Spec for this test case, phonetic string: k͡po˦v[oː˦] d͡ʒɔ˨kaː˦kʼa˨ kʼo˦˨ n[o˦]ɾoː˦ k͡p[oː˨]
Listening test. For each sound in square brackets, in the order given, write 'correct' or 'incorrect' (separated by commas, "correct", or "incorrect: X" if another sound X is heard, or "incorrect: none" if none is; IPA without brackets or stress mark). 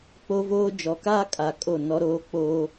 correct, incorrect: ɔ˦, incorrect: oː˦